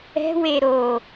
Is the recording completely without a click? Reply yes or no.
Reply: yes